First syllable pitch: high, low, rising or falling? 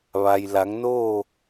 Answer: low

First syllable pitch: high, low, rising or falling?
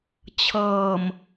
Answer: low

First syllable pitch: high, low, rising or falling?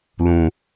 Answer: low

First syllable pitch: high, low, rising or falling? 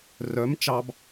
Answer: rising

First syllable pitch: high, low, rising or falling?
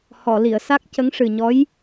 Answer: low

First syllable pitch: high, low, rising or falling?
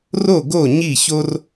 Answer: falling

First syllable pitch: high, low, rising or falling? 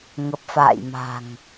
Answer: low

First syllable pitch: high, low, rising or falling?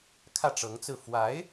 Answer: falling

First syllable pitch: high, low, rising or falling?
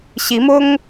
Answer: rising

